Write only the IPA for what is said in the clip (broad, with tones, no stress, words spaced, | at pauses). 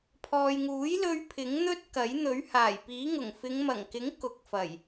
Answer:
pʰɔː˨jŋuː˨˥j lɵ˧ɥ pʰɪ˨˥ŋn̪ɵ˥t̚kɐ˨˥j n̪ɵ˨˥ɥhaː˨˩jpiː˨˥ŋʊ˨˩ŋ fɪ˨˧ŋmɐ˨˩ŋkɪ˨˥ŋ kʊ˨˥k̚fɐ˨˩j